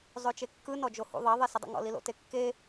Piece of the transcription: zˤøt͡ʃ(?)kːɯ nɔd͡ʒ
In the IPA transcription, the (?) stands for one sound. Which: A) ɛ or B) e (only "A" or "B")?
B